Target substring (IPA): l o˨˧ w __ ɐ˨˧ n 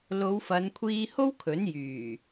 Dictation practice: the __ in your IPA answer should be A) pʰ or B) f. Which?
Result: B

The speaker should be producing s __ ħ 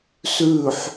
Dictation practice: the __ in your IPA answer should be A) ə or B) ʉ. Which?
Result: B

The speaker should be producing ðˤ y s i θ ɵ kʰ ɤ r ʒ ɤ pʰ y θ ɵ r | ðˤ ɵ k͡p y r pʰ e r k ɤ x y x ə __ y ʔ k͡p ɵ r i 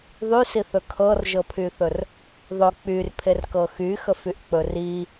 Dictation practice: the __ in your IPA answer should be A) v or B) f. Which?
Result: B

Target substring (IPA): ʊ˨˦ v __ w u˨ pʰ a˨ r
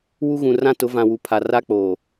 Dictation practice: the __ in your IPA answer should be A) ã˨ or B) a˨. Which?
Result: A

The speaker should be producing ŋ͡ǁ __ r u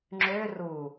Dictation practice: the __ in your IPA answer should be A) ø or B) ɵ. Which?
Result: A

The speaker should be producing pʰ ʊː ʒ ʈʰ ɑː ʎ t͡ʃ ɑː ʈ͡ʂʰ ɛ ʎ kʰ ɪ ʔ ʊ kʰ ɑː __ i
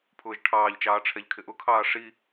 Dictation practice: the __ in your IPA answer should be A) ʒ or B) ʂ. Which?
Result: B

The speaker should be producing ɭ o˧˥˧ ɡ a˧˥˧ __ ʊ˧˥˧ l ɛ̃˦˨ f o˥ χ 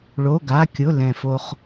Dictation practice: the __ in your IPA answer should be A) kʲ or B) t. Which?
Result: A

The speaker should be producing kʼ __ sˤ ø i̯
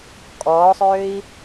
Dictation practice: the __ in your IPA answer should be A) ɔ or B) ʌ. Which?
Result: A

